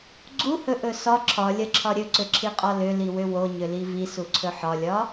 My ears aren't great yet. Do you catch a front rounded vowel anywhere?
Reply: yes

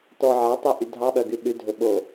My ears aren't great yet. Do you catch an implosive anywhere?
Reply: yes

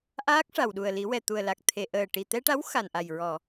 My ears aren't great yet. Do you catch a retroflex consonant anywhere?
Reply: yes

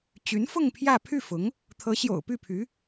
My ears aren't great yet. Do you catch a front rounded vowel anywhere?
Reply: yes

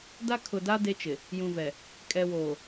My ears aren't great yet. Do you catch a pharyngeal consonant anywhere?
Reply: no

